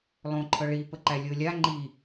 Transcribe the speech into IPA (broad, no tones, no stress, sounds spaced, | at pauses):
lˠ õ ǃʰ ɤ ɭ i p ə ǃ æ lʲ ɤ lʲ a ŋ͡ǃ i